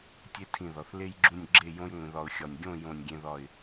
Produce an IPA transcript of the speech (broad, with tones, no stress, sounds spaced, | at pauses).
tʲ e˥ tʰ ĩ˧˩ ð ɒ˩˧ θ l e˥ j ɡ͡ǁ ũ˥˧ nʲ ɡ͡ǁ e˥˧ j õ˥ j ŋʷ ĩ˩˧ ð ɒ˧ ʊ̯ xʲ ɒ˧˩ nʲ ɡʲ õ˥˧ j õ˧˩ nʲ ɡʲ ẽ˧ ð ɒ˧˩ ɪ̯